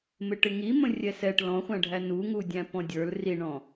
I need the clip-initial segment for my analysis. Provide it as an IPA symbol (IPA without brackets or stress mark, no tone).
m